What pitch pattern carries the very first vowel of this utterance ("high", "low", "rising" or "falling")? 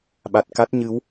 low